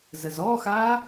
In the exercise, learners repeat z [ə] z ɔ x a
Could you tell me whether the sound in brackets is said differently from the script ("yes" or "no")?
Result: no